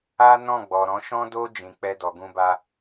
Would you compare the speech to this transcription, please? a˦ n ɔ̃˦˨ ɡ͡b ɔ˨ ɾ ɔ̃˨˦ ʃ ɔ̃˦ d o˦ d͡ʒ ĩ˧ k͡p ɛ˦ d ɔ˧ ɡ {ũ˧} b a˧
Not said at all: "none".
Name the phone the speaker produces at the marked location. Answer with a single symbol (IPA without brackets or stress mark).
ũ˧